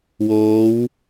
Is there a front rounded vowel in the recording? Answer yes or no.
no